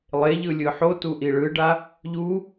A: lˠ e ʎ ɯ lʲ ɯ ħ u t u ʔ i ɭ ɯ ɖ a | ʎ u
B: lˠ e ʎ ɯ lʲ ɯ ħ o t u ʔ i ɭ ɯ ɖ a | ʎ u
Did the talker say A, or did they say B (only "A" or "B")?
B